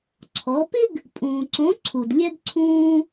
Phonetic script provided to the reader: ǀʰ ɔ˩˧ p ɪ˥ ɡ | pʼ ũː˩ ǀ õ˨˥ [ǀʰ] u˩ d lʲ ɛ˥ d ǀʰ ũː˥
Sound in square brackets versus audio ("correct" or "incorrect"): correct